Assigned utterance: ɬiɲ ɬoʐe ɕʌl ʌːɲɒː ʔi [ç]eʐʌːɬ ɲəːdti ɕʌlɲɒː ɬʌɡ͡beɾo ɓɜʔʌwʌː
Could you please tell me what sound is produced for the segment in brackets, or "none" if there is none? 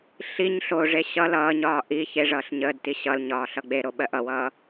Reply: ç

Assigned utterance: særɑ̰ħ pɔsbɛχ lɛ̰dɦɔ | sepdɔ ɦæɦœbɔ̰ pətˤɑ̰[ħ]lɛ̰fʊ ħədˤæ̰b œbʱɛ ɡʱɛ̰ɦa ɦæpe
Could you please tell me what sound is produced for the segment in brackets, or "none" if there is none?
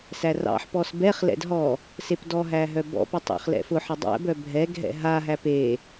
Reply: χ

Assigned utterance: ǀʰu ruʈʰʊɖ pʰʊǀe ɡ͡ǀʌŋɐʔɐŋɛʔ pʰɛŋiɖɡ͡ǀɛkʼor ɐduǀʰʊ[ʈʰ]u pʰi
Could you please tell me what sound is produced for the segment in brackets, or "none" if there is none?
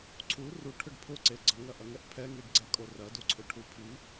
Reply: ʈʰ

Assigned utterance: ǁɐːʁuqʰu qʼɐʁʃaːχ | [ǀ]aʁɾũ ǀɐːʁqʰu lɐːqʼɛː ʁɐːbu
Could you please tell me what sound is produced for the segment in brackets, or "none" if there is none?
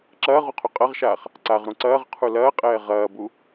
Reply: ǀ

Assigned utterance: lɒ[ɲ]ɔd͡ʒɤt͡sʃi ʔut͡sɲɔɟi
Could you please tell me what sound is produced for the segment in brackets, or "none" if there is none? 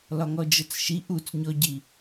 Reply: ŋ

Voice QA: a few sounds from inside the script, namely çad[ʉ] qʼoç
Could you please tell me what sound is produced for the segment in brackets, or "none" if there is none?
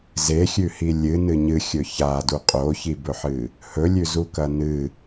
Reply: u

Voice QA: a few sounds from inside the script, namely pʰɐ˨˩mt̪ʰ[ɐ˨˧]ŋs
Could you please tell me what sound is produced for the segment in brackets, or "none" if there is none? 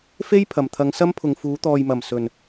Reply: ɐ˨˧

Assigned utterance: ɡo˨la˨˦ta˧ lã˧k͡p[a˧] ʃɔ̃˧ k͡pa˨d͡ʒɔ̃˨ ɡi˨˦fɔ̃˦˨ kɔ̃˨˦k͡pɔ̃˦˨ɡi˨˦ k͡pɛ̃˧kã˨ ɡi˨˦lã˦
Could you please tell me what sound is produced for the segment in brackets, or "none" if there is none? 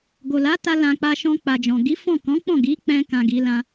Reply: a˧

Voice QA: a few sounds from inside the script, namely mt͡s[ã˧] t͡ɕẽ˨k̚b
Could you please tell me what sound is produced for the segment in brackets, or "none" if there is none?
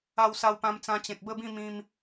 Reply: ã˧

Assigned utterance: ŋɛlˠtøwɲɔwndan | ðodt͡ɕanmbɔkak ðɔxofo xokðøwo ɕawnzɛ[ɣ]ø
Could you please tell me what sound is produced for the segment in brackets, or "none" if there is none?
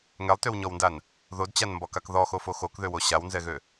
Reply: ɣ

